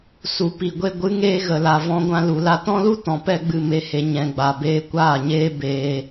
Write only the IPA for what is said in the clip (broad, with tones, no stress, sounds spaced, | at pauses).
s u˨ p i˨ ɡʷ e˧ ɡʷ ɨ˨˦ ŋ eː˧ ɣ ə˨ l a˨ v ɔ̃˧ ɡʷ ã˧ l u˨ l a˧ t ɔ̃˦ l u˦ t ɔ̃˨ p ɛ˦ ɡ͡b ɨ˦˨ m e˧ h e˨ ɲ ɛ̃˨ ɡ͡b a˨ b eː˧ kʷ aː˦˨ ɲ eː˦ b eː˧